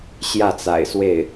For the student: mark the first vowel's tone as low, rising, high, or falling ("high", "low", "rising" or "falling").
falling